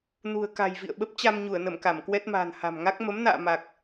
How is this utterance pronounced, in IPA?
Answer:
nṳ˨˩ə̯ ka̤˨˩jvḭ˧˨ə̯ɓə˦˥p̚ t͡ɕa˧mɲu˧˩ə̯nə˧˩m ka˧˩mkwɛ˦˥t̚ma̤ː˨˩n ha̤˨˩mŋa˦˥k̚ mə˨˦mna̰ː˧˨ma˨˩k̚

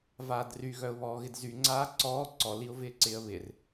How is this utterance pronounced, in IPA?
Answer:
vaːdry ɣœʊ̯βɔːɣɪdzy ŋ͡ǀaːǀɔː ǀɔ liʊ̯vɪːǀɪːə̯βɪr

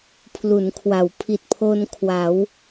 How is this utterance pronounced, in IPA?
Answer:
pʰlu˩˦nkʰwa˩˦w pʰi˨˩t̚pʰo˧n kʰwa˩˦w

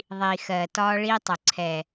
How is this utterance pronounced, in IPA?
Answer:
ðˤi˨xɜː˨t ɒː˦ɭi˦tˤʊ˨ ǀʰɛ˨

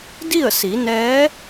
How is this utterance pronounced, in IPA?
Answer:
di˥˨ə̯si˩˧nɛː˧˥

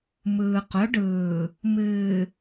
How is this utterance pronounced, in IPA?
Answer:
mɯː˨qʊ˨˦ɖɯː˨ | mɨː˨

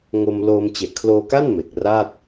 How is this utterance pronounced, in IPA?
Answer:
ŋo˧m loː˧m t͡ɕe˨˩ʔkʰloː˧ka˥˩n me˨˩k̚ra˥˩t̚

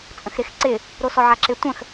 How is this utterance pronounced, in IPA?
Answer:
t͡sʼə̃xɾɪx ǀɪ | ɾosɔʕaǁɪ tʷə̃x

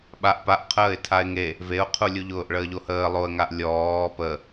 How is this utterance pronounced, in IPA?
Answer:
ɓaʔ paʔqʰəːɪ̯ tʰaɪ̯ŋe | veʊ̯qʰulʲuʎʊːʔ ɭəːʎohəː lˠoə̯ŋaʔ lʲɔː pə

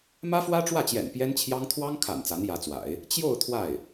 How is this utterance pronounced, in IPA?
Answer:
mä˥fwä˥ʈ͡ʂwä˥˩t͡ɕjɛ̰˨˩n pjɛ˥nt͡ɕʰjɑ˥ŋ t̪ʰwɑ˥ŋkʰa̰˨˩n t͡sa˧˥njä˧˥t͡swa̰˨˩˦ɪ̯ | t͡ɕjo˥˧ʊ̯ t̪ʰwa˥˩ɪ̯

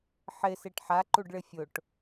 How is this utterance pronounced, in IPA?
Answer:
ħɪseʈ ħaǃuɖɭɪ fʲʊʈ

